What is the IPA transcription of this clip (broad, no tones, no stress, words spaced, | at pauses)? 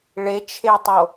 ɭet͡ʃʰetˤo